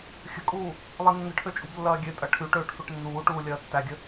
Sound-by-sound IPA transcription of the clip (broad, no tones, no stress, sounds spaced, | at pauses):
xʲ ə̤ kʼ uː | lˠ i nː ə̤ ʈʰ ø t͡ʃʼ ṳ b lː ɐː ɡʲ ø tʼ ɐ ʈʰ y ʈ øː ʈ f ø ʈ nː uː ʈ uː lʲ ɐː tː æ ɡʲ ə